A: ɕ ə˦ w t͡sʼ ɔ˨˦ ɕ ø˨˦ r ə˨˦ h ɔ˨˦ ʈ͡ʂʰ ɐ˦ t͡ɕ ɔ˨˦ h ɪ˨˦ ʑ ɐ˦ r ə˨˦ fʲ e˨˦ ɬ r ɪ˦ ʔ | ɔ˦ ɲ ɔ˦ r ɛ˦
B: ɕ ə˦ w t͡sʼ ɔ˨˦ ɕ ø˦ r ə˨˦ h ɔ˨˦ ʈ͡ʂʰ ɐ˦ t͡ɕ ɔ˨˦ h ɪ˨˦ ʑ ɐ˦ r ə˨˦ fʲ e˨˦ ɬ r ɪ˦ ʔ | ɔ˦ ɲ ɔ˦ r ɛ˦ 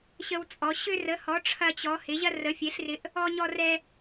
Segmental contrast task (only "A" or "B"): B